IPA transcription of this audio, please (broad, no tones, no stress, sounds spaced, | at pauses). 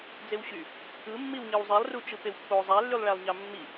d͡z e w ɕ y | ɯ mː i w ɲ ɯ w zˤ i lˠ r u t͡ʃ ɯ p e w pː o zˤ æ lː y lˠ ɭ æ lˠ ɲ ɑ mː i